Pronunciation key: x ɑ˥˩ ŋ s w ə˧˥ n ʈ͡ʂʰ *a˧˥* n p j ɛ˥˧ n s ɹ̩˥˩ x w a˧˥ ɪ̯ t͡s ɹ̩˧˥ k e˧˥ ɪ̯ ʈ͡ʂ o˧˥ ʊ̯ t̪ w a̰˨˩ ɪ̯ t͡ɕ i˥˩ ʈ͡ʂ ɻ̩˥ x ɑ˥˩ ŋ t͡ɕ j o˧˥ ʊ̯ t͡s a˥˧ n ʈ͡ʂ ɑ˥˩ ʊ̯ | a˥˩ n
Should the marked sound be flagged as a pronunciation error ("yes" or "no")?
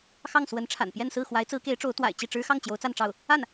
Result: yes